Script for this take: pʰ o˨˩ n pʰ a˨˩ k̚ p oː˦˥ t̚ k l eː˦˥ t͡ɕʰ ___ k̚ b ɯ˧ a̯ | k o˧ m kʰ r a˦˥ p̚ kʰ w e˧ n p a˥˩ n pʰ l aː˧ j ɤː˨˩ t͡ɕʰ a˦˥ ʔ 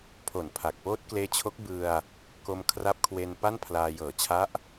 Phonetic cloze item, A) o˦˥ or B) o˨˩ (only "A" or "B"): A